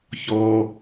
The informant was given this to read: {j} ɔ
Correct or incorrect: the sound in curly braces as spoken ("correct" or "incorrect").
incorrect